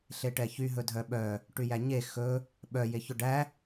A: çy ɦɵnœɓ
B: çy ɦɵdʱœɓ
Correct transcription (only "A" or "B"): B